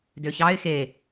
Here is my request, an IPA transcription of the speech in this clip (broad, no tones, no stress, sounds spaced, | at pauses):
d ø ç ɑ ɪ̯ x e